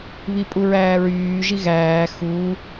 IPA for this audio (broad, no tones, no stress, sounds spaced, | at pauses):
β i pʼ u ɹ æː ɹ yː ʒ i ɣ æː x uː